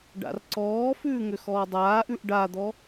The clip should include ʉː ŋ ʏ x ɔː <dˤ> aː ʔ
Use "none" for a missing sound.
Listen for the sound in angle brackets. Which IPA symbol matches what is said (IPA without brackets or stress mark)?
dˤ